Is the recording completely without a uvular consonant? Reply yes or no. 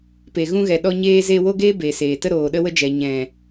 yes